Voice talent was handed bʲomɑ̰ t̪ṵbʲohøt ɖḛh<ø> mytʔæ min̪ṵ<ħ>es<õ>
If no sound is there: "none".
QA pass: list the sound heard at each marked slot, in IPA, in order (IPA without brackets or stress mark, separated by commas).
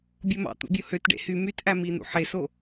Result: y, ħ, o